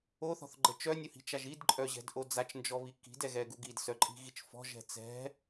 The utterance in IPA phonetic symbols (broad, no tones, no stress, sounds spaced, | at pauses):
o θ ɔ̤ θ ɡ͡ǃ ə t͡ʃ œ nʲ u h i̤ t͡ʃ a ʒ i d ǃʼ œ ʑ ɛ̤ d ʔ o d͡z a t͡ʃ n d͡ʒ ɔ β i k i̤ d ɛ ɣ ɛ ɡ u ɡ i d s œ ǃʼ i̤ ɣ i t͡ʃ f ɔ̤ ʒ ɛ̤ t͡s ɛ̤